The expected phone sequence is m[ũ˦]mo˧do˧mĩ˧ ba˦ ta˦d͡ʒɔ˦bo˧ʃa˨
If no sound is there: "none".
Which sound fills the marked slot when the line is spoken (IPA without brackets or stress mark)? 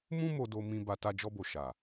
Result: ũ˦